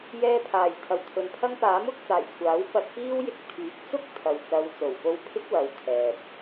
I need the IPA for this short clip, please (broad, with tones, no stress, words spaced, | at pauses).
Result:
jɛː˧pʰaː˨˩j t̪ʰɐ˨wt̪ʰɵ˨˧npʰɐ˥ŋ paː˨˥mʊ˨˥k̚t͡saː˨˩j kʷʰaː˨˥w pɐ˧t̚piː˥wjɪ˧k̚ t̪ʰyː˨˥k̚t͡sʊ˥k̚ t̪ʰɐ˨wt͡sɐ˨˧w t͡so˨˩wpo˧wpʰɪ˥k̚wɐ˨˧w t̪ʰɛː˨p̚